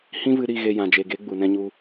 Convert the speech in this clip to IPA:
h ĩ˦ v ɨ˧ ɾ i˦˨ ɣ e˧ j ã˨ d͡ʒ e˨ ɡ e˨˦ ɡ͡b u˨ n ɛ̃˧ ɲ u˧

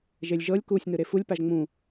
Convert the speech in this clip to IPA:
ʒ e lʲ ʒ ɤ lʲ k u sʲ n ɯ ɾ e f u lʲ p a ʒ ŋ͡m ũ

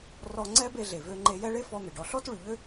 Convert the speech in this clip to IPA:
r ɔ˧ ŋ͡ǀ ɛ˥ b e˧ ɮ e˩ v ø˧ ŋ͡ǃ e˧ j ɛ˥ ɭ e˥ f ɔ˧ n̪ e˩ ɖ ɔ˧ ɬ ɔ˥ t ɭ y˩ ʎ ø˥

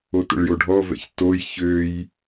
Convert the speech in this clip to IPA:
o t ə̰ ɭ j o ɖʱ ɔ v ɛ̰ ç t o j ç ø j

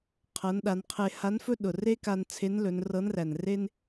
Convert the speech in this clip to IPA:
qʰ ɤ˩˧ n ɗ a˩˧ n qʰ e˧ h a˧˥ n f ɵ˥ ɗ ʊ˩ r e˥ k a˧ n t͡sʰ e˧˥ n l ɵ˩˧ n r ɤ˧˥ n r æ˩ n r e˥ n

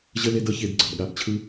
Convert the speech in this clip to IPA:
ʑ ə˦ l e˦ d ʌ˦ ç e˧ d ɡ͡ǀ ʌ˨ b ɠ a˧ b t͡ɕʰ ɯ˦

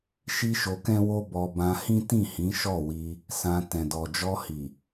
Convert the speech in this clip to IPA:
ʃ i˦ ʃ o˧ k ɛ̃˦ w o˦ b ɔ˧ b ã˧ h ĩ˦ t ĩ˦˨ h ĩ˨˦ ʃ ɔ˦˨ w i˧ | s ã˧ t ɛ̃˨ d ɔ˨ d͡ʒ ɔ˧ h i˨

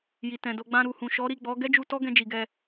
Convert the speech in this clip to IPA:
j i˨ t ɛ̃˨ d o˧ ɡ͡b ã˧ ɾ u˨ h ũ˨ ʃ ɔ˨˦ ɾ i˦˨ ɡ͡b ɔ˨˦ ɡ ɛ˦ d͡ʒ u˧ t ɔ˦ ɡ ɛ̃˧ d͡ʒ i˨ ɡ ɛ˧

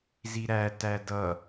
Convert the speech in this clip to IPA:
z i ɾ æ t æ d ʌ

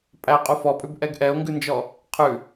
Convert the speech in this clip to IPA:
pʼ æ qʼ u f ɔ pʼ ʉ b ʔ ɛ ɡ ʔ ɛ o̯ ŋ ɡ ʉ n d͡ʒ ɔ | qʰ ʉ

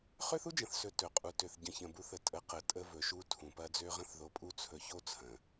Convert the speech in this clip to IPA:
χ ø˦ θ u˦ d͡ʒ ə̃˨ θ s ɵ˨ t ɵ˨ qʼ u˨ t ø˨ θ ɟ ə̃˨ ç ə̃˨ b u˨˦ θ ə˨ tʼ ə˨˦ q ə˨ tʼ ə˦ v ɵ˨ ʃ u˦ tʰ ũ˨ p ɐ˦ d͡z ø˦ ʁ ə̃˦ θ ð o˨ pʼ u˦ t͡sʰ ɵ˨ ç o˦ t͡sʰ ə̃˨

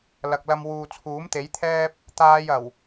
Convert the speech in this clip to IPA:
l ɐ˨ k̚ l ɐ˧ m w uː˨ t͡sʰ uː˨˥ m t̪ e˨˥ j t̪ʰ ɛː˥ p̚ | t̪ aː˥ j ɐ˨˩ w

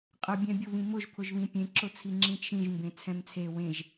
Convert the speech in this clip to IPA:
qʼ ə bʲ ɛ̃ bʲ ʊ β ĩ m ʊ ʒ pʰ ʊ ʒ β ĩ pʲ ẽ ǁ ʊ t͡sʰ i ŋ͡ǁ ĩ t͡ʃʰ ĩ ʒ m b ẽ t͡sʰ ɛ̃ m t͡sʰ e w ẽ ʒ

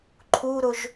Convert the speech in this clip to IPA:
ǃʰ u ɾ ʊ ʒ

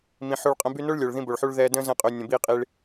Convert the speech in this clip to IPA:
m ĩ˨ ħ o˧ ɭ qʼ ə̃˧ b y˧ n o˦ ɭ lʲ o˨ ɭ ð ĩ˦ b o˨ ɭ ħ u˦ ɭ ð ɛː˧ d ə̃ː˦ z ə̃ː˧ qʼ ø˨ nʲ ə̃˨ b iː˧ qʼ i˧ ɭ

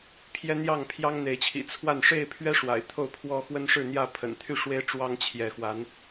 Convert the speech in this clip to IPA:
pʰ j ɛ˦ n̪ j ɑ˥˨ ŋ pʰ j ɑ˦ ŋ n̪ e˨˦ ɪ̯ t͡ɕʰ ḭ˨˩ t͡sʰ w a˥˨ n ʂ e˥˨ ɪ̯ pʰ ɥ ɛ˦ ʂ w a̰˨˩ ɪ̯ t̪ʰ o˥˨ ʊ̯ pʰ w ɔ˦ x w ə˦ n ʂ ɻ̩˥˨ n̪ j ä˥˨ pʰ ə̰˨˩ n t̪ʰ y˥˨ ʂ w e˦ ɪ̯ ʈ͡ʂ w ɑ˦ ŋ t͡ɕʰ j ɛ˨˦ x w a˨˦ n

